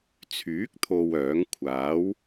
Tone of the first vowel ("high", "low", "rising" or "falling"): rising